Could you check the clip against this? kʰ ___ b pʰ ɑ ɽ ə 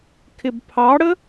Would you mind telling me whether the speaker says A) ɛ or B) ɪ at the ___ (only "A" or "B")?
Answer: B